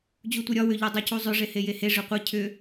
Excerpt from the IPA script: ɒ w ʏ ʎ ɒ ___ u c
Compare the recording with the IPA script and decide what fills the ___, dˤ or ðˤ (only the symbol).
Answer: dˤ